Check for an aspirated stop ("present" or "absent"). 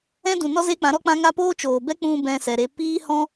absent